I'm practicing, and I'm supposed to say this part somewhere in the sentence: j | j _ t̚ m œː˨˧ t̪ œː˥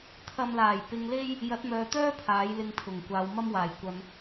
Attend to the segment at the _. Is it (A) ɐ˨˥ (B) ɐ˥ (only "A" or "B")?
A